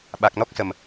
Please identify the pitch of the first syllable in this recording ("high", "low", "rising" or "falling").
low